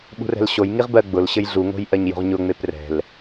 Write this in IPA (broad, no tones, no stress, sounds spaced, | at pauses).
ɓ ṳ r ɛ̤ l ɕ o j ŋ i ʁ b ɜ ɡ͡b ʊ l ɕ ɘ j ɮ u ŋ o̤ j ʔ ɜ ɲ j o̤ ʁ ɲ ʊ ŋ͡m e p r ɛ̤ l